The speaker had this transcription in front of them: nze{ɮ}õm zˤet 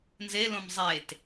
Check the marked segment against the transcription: incorrect: l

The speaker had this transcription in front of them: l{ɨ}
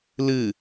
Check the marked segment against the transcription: correct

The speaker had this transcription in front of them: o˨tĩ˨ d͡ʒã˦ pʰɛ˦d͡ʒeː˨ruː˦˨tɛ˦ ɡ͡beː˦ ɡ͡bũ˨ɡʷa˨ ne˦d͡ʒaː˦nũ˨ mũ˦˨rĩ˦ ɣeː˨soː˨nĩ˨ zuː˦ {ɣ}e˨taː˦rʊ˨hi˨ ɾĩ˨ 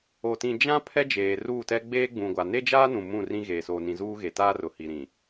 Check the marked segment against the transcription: correct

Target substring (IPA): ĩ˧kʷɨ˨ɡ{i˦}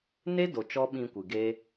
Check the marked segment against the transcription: incorrect: e˦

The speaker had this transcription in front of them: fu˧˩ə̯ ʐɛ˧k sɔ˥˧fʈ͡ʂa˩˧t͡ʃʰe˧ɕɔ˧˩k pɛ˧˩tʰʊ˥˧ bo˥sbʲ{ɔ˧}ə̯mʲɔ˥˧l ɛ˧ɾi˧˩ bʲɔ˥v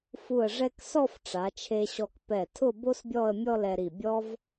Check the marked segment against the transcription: incorrect: ɔ˥˧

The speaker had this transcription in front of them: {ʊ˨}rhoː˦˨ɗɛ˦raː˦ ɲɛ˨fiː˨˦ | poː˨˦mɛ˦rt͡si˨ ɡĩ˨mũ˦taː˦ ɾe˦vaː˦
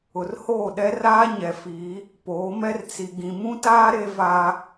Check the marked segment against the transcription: correct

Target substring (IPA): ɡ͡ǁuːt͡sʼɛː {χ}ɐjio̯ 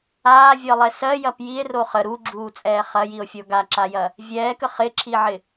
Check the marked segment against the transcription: correct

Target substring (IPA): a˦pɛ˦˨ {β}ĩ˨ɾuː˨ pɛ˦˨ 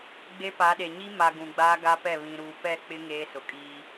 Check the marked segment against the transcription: correct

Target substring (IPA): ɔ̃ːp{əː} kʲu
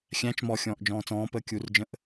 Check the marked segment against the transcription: correct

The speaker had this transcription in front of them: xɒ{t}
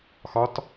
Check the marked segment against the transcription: correct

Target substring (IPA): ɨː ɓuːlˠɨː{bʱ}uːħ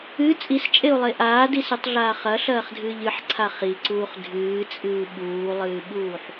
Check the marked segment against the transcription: incorrect: ɓ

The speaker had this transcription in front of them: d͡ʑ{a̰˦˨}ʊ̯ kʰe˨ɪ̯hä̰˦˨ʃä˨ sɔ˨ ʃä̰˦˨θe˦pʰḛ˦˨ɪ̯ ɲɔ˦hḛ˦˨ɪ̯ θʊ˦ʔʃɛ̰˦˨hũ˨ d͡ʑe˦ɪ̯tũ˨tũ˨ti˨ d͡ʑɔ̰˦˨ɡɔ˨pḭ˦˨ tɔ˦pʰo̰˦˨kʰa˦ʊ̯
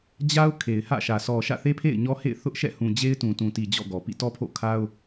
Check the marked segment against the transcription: incorrect: a˦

